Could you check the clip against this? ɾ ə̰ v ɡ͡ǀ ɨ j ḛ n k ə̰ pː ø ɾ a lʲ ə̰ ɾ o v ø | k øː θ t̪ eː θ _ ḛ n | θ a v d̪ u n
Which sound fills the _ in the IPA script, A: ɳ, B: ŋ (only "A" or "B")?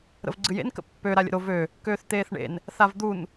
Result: A